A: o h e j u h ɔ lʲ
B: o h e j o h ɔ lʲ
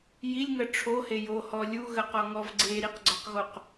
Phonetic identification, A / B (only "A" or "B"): B